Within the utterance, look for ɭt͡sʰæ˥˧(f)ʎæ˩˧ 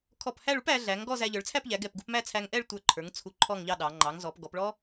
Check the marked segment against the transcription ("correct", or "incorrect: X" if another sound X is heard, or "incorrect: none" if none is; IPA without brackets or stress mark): incorrect: p